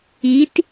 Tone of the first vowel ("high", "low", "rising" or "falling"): rising